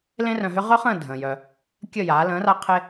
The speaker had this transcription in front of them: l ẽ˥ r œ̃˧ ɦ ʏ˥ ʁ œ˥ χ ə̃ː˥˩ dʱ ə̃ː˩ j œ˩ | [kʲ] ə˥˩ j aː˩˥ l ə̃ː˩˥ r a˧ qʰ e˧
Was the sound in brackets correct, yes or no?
yes